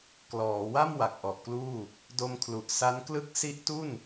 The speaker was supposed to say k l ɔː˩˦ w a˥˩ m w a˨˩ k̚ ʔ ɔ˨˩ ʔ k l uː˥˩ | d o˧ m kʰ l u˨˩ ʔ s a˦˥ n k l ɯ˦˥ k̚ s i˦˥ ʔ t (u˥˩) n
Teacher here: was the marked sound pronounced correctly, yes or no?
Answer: yes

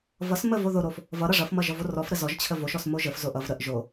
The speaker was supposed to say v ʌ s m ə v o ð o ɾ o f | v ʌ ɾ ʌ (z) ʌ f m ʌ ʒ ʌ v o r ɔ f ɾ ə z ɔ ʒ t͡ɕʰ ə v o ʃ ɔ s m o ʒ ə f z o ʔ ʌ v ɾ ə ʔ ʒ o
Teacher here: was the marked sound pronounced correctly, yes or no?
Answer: no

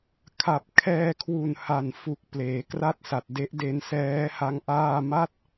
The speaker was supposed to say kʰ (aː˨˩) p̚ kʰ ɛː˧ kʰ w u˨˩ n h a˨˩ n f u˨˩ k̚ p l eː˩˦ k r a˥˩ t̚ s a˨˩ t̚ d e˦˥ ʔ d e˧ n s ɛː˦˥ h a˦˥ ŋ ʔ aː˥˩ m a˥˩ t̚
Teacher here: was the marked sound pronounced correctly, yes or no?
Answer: no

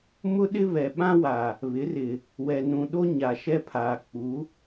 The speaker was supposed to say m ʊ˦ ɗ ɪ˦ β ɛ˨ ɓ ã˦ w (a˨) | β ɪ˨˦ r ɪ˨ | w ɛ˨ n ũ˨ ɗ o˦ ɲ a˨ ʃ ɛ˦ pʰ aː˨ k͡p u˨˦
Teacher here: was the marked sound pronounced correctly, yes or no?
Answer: yes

